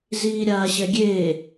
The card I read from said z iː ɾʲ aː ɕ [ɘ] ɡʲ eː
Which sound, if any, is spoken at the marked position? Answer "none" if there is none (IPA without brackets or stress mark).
ɛ